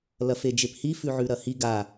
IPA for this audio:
l ɐ f e d͡ʒ e p h i f ʉ ʕ ʉ ɾ ɐ h i ɡ a

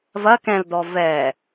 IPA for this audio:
v ɐ k ɛ̃ l d ɔ v ɛ

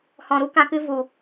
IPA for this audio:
h ɔ̃˨ ɾ u˦ k ã˧ k ɨ˧ v u˨

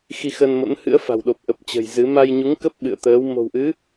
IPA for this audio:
x i˧ x əː˧ n m o̰˧˥ n h ɨ̰˧˥ ə̯ f a̤˨˩ w ɗ o˨˩ p̚ ʔ ə˨˩ p̚ t͡ɕ ə̤˨˩ j z ɨ˨˦ m a˧ j ɲ u˨˦ ŋ k ə˦˥ p̚ ɓ ɨ̰˧˨ ə̯ t̪ əː˨˦ w m o̤˨˩ w ʔ ɨ˨˦

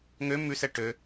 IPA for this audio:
ŋ ø m ʉ s ɛ ʈ ø

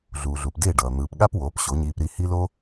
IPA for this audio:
ɮ uː˨ ɮ u˨ p d e˦˨ ɖ ʌː˨ n̪ ɯː˨ p ɠ a˦ p w oː˨˦ p ɕ o˨˦ ɲ iː˧ p ɾ i˧ h i˦ l o˦

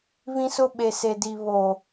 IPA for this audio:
β ĩ˦ s ʊ˦ ɓ e˨ s e˨ d i˨ β o˨

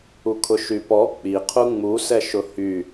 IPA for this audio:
u kʰ ʊ ʃ y p ɔ k͡p i qʰ u ŋ͡m u s ɛ ʃ ʊ h y

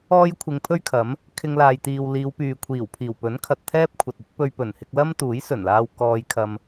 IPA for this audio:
ɔː˥ j kʷʰ ɪ˧ ŋ pʰ ɵ˥ ɥ kʰ ɐ˨˥ m | kʰ ɪ˧ ŋ l aː˨ j t̪ iː˨ w l iː˨˧ w p yː˨ kʷʰ iː˨˩ w pʰ iː˨˩ w p ɵ˨˥ n kʰ ɐ˨ t̚ t̪ʰ ɛː˥ p̚ kʷʰ ɐ˨ t̚ ɵ˥ t̚ p ɵ˧ ɥ p ɵ˨˩ n h ɪ˧ k̚ l ɐ˥ m t̪ uː˨˥ j s ɵ˨˩ n l aː˧ w k ɔː˧ j kʰ ɐ˧ m

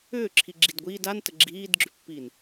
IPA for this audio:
ʏː ǁʰ i ɡ͡ǁ i d ɡʷ iː d a n t ə ɡ͡ǁ iː d ɡ͡ǁ ʏ pː iː n

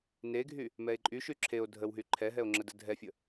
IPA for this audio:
n e ɡʱ y | m ɛ e̯ ǃʼ y ʃ y ǁʰ e o̯ dʱ ə w ɦ y ǃʰ ɛ ɦ ɛ o̯ ŋ͡ǁ ə d ə dʱ ɛ fʲ ə

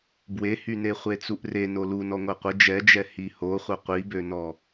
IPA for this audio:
b w e h y n e χʷ e t͡s u ʔ r e n o l u n ɔ ŋʷ ɛ qʷ ə d͡ʒ ɛ d͡ʒ ɛ h i h o χʷ œ qʷ i b ø n ɔ

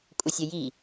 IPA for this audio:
kʷʼ ə sʲ ə j i

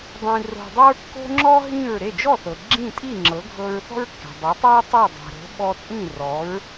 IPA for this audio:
dˤ ĩ˧ r o̤˧ dˤ ɤ˥ ɹ kː o̤˥ ŋ͡ǁ ɔ˥ ɦ ĩ˥˩ ɹ ɾ e˥˩ d͡ʒ ɔ˥˩ θ ɤ˩ ɡ͡ǁ ĩ˥˩ tʼ i˥˩ ŋ͡ǁ ɤ˩˥ ɡʱ ɤ˧ ɹ θ ɔ̤˥ ɹ kː e̤˩ dˤ o˩˥ tˤ e˥ ɹ tˤ i˥˩ dˤ e̤˩ ɾ o̤˩˥ ɓ ɔ˧ t͡sʼ ĩ˥˩ r ɔ˩˥ ɹ

